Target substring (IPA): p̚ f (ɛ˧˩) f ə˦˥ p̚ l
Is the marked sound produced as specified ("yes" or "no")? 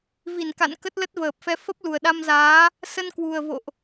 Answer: no